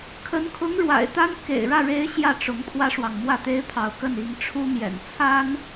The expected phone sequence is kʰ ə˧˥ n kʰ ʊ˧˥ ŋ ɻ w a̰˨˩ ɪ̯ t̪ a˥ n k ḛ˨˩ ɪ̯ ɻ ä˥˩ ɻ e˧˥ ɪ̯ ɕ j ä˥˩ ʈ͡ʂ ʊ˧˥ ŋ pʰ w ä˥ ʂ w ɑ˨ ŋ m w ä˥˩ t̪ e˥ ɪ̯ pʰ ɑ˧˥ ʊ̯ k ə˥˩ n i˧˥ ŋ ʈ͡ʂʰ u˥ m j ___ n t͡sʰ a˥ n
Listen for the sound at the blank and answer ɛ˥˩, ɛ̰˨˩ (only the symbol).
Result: ɛ̰˨˩